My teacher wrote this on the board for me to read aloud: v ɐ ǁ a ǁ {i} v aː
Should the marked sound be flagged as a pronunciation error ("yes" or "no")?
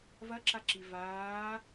no